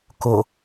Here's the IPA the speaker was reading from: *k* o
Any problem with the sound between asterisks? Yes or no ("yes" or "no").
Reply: no